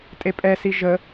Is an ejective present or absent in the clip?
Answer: present